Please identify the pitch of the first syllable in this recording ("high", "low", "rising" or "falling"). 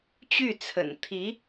falling